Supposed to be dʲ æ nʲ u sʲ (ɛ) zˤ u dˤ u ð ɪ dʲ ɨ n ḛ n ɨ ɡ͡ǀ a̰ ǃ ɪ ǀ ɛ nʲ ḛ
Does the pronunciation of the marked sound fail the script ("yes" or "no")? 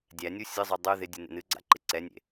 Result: yes